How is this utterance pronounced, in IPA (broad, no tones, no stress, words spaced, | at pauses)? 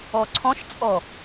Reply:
ɔǀʰɔ̃ʃt͡sʼɔ